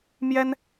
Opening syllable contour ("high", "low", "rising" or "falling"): high